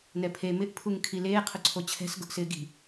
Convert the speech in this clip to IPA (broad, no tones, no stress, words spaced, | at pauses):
nɛpʰe mɪʔ pʰuŋkʰileː qʰʊǀʰot͡ɕʰɛ̤s ɡʊʔsɪːɡi̤